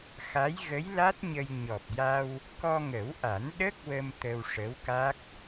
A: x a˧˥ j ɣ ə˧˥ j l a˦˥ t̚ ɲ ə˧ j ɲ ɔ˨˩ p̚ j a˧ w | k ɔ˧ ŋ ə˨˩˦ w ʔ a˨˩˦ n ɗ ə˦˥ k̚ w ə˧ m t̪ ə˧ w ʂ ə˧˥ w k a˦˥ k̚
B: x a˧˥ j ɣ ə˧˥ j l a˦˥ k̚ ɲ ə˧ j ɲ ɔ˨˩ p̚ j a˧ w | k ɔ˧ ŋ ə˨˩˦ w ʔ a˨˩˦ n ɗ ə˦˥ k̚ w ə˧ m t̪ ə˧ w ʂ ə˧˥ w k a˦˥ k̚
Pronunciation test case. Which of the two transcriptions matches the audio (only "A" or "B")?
A